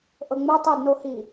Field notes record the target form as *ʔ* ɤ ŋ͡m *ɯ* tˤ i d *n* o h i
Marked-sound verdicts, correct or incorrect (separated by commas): correct, correct, correct